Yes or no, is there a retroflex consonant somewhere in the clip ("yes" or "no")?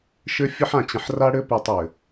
yes